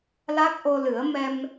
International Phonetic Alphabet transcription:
la˦˥k̚ʔo˧lɨ˨˩˦ə̯ mɛ˧m

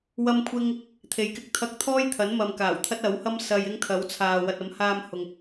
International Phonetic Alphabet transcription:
wɐ˧mkʷʰɪ˧ŋ | t̪ʰe˨˧jkɪ˧k̚ t̪ʰɐ˧k̚t̪ʰɔː˥j t̪ʰɐ˨˥nmɐ˨mkaː˨˩wt̪ʰɐ˥t̚ ɐ˨˥whɐ˥m sɐ˧jɪ˥ŋ t̪ʰɐ˨˥w t͡sʰaː˨ wɐ˨t̚ɐ˨˥mhaː˧m hʊ˨ŋ

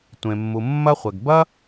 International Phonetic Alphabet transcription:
tʷẽ˩mːu˩mːɐ˥χʷɛ˩ɡ bɐ˥

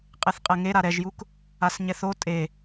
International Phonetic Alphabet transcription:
qʼeθqʼɛŋe ɾaɾɛʒjuk | asɲɛθo tʼe

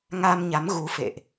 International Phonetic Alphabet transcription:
ŋa˧mɲa˨˦m ɣu˨˦ fḛ˧˨ʔ

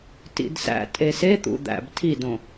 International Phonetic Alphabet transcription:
tḭdsæ̰ tʼese t̪ṵd̪æ̰b tʰidõ

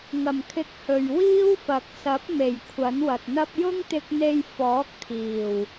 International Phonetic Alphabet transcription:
ŋɐ˨˩mkʰɪ˨˥k̚ hɵ˨ɥ wiː˥wfɐ˨k̚ sɐ˨˥p̚me˨˩j kʷʰɐ˨˥nwɐ˨t̚n̪ɐ˥p̚ jʊ˥ŋt̪ɪ˧k̚n̪e˧j fɔː˨˥k̚t̪ʰiː˨˩w

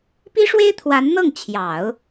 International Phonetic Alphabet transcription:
pi˥ʂwe˥ɪ̯t̪ʰwa˧˥nn̪ɤ˥˩ŋ t͡ɕʰjɑ˨˩˦ʊ̯

